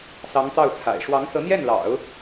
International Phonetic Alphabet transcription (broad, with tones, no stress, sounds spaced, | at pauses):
s ɑ˧˥ ŋ t̪ ɑ˥˩ ʊ̯ t͡sʰ a̰˨˩ ɪ̯ ʂ w ɑ˧˥ ŋ s ɤ˧˥ n̪ j ɛ˥˩ n l ɑ̰˨˩˦ ʊ̯